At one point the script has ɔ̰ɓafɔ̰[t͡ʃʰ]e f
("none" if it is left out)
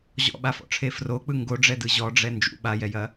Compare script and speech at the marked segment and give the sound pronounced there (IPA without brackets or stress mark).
ʈ͡ʂʰ